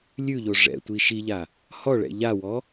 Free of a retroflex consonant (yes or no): no